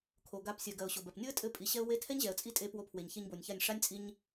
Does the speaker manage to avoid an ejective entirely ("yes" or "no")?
no